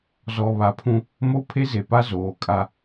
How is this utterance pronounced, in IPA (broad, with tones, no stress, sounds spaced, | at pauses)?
z ɔ˨ β a˨ pʰ ũ˦ | m o˦ pʰ e˦ z e˨ p a˦ z oː˨ kʼ a˦